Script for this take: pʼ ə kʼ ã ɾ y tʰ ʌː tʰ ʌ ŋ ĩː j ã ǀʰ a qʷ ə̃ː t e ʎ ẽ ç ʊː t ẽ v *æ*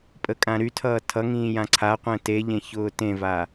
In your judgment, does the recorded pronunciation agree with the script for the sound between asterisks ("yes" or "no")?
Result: no